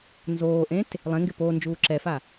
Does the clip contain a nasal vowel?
yes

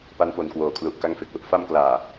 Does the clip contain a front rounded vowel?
no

